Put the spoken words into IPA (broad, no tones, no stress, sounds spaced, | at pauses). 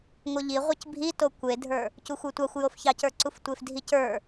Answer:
ŋʷ ɤ ʎ i ʁʷ e c bʱ i t o kʷ e dʱ ə˞ | c u xʷ ə˞ tʷ ɑ xʷ j o f ç ɑ c ə˞ ǀ u f tʷ e f dʱ i c ə˞